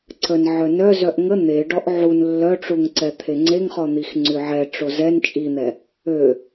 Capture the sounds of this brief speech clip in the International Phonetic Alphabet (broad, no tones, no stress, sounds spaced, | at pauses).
ǀ ə n ʕ œ n œ z œ ʔ ŋ ə n̪ e ɖ ɔ ʔ ʕ u n lː œ ʈ͡ʂ u ŋ ǀ ɛ t̪ʰ e ŋ͡ǀ e ŋ χ ɔ n̪ i x ŋ͡ǀ y ʕ ɛ ʈ͡ʂ o z ɛ n t͡ʃʼ i n̪ ɛ | ø